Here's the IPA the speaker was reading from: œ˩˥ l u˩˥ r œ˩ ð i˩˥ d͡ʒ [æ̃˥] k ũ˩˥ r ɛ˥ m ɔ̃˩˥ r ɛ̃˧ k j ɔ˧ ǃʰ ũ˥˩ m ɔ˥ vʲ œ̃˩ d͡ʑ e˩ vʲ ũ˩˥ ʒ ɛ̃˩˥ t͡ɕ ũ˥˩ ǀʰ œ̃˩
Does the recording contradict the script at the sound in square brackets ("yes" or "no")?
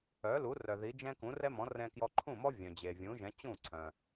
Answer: yes